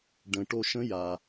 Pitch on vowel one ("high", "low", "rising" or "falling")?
low